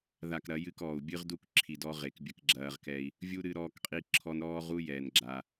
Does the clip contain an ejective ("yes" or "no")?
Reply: yes